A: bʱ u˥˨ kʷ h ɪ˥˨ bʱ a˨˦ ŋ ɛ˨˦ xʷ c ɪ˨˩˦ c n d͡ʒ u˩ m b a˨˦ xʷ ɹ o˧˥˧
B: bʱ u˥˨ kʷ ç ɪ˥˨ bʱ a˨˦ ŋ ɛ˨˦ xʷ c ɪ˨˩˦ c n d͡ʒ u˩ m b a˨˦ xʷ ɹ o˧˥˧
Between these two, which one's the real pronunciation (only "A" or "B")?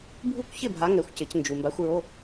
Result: B